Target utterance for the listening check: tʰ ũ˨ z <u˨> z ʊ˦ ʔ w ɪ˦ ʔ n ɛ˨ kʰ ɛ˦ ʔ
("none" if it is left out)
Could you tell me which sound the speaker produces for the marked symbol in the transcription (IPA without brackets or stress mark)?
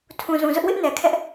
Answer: ũ˨